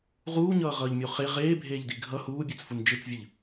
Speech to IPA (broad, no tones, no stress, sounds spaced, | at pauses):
ʁ uː ɲ ʌː ʁ ʌː ʎ mʲ o χ e ʁ eː bʱ eː ʎ d i ɡʱ ʌ h uː bʲ e t͡s f u n d͡ʒ ɯ t͡s vʲ ɯ ʎ